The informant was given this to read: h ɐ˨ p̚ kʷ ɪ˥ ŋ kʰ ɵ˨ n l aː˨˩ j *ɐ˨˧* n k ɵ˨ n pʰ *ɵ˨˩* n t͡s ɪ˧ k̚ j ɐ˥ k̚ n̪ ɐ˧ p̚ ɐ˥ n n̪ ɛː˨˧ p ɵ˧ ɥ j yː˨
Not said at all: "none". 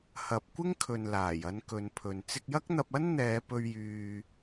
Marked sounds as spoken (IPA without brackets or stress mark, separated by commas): ɐ˧, ɵ˨